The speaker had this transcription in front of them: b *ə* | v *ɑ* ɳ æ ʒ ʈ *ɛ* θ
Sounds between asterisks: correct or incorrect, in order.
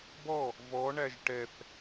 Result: incorrect: ɔ, incorrect: ɔ, correct

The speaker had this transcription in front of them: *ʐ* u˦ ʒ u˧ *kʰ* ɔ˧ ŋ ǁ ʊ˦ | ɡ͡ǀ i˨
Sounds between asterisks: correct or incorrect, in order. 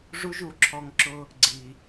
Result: correct, incorrect: ǁʰ

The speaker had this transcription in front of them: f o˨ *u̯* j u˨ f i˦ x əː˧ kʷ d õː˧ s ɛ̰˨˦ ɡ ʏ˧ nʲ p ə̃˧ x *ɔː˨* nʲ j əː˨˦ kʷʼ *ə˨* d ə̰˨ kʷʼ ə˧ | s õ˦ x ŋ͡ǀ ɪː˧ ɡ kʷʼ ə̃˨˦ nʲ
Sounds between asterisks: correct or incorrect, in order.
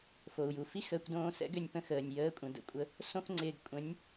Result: correct, incorrect: əː˨, incorrect: ə̃˨

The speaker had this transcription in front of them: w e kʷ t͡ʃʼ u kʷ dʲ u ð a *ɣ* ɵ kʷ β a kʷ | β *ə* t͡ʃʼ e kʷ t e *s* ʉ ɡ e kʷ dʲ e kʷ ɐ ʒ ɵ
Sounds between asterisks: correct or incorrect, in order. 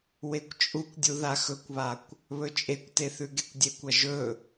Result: incorrect: x, incorrect: ɵ, incorrect: θ

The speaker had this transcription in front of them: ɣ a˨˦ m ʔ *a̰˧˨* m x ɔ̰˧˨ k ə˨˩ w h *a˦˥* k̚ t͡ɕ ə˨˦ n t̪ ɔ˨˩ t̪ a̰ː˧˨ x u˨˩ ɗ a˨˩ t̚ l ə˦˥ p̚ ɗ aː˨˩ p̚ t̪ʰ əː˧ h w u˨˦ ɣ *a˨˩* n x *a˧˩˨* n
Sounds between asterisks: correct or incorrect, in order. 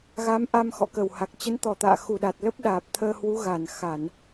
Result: incorrect: a˧, incorrect: a˨˩, correct, correct

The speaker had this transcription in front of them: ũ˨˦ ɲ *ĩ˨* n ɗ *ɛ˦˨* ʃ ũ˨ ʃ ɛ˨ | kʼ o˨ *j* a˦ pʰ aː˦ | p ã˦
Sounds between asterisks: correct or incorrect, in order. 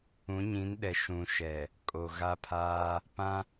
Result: incorrect: ĩ˨˦, incorrect: ɛ˨, incorrect: ɣ

